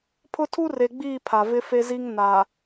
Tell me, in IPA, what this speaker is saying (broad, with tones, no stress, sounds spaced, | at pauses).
pʰ ʊ˦ tʰ u˦ r e˨ ɡ͡b iː˦˨ pʰ a˨ v ɪ˦ f e˦ z i˦ ŋ n a˨